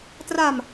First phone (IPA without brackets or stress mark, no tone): t